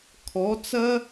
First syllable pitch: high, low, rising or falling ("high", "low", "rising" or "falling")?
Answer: rising